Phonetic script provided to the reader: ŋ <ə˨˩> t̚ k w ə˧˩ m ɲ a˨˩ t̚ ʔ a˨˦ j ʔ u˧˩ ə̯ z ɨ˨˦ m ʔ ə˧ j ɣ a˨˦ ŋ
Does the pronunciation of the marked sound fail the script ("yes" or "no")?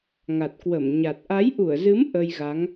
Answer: yes